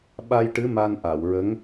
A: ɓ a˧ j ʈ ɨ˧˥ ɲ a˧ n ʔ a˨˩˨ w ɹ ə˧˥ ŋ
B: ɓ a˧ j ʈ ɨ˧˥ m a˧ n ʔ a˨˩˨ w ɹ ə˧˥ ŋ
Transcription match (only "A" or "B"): B